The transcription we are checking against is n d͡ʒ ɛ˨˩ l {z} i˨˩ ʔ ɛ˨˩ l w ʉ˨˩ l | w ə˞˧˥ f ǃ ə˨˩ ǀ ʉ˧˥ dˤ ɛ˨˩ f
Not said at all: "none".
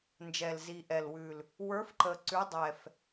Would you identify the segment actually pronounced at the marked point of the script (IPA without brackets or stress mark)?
z